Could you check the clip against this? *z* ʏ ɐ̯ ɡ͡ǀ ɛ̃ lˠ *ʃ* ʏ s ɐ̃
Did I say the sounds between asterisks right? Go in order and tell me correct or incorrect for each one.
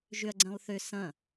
incorrect: ʒ, incorrect: θ

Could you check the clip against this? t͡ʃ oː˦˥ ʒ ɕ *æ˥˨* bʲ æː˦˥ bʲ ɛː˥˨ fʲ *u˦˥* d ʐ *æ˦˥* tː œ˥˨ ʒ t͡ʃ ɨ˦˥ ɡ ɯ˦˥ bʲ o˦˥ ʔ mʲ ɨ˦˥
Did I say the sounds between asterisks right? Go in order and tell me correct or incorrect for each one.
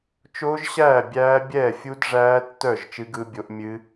incorrect: æː˥˨, correct, incorrect: æː˦˥

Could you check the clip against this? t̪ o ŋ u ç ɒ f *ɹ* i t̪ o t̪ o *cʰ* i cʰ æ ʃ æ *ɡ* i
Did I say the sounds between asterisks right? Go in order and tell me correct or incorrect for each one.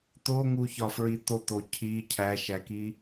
correct, correct, incorrect: k

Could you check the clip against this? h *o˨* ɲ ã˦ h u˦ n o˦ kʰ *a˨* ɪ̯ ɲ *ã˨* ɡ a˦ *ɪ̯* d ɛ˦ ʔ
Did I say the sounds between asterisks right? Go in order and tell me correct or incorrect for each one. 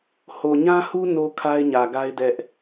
correct, incorrect: a˦, incorrect: ä˨, correct

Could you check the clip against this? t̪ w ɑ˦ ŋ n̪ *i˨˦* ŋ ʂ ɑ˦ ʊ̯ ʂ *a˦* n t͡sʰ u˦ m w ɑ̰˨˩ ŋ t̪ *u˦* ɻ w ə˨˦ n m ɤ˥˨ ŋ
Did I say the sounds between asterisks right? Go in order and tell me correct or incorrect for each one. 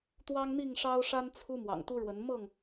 incorrect: i˥˨, correct, correct

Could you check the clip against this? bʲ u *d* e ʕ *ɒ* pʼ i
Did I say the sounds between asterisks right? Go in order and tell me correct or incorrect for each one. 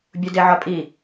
correct, correct

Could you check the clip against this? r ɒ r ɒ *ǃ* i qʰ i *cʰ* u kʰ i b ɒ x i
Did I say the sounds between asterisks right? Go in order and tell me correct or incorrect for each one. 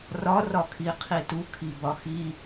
incorrect: kʰ, incorrect: t

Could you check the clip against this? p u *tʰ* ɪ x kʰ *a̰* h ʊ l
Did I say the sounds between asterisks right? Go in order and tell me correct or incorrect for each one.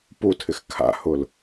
correct, correct

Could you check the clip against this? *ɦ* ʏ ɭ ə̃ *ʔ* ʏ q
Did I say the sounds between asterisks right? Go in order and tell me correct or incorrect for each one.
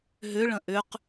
correct, correct

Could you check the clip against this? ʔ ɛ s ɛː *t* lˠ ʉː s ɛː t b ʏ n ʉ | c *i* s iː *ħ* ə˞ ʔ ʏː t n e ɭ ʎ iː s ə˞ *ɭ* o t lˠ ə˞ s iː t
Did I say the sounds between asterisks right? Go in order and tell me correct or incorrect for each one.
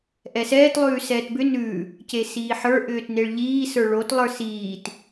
correct, incorrect: e, correct, correct

